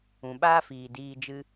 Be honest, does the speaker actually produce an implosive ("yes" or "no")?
yes